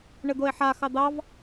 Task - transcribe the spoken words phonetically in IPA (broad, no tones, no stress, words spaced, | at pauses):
ɳɘd̪oe̯ħa xɑd̪ɑv